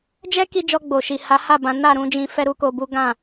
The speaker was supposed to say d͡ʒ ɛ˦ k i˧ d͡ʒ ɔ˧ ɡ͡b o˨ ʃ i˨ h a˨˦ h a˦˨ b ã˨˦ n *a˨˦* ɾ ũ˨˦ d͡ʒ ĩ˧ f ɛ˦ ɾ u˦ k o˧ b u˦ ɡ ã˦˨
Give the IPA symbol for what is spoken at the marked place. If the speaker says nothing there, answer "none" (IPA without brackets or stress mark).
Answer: a˦˨